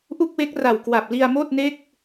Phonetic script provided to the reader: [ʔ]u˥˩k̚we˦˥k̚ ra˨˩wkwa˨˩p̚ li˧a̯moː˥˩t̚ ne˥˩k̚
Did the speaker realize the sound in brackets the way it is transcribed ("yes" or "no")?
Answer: yes